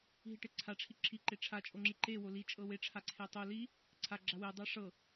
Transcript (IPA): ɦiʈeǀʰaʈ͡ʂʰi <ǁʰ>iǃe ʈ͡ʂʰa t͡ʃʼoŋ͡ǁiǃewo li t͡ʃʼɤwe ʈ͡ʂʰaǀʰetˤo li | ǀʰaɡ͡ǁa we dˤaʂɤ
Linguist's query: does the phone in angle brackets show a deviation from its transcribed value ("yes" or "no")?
no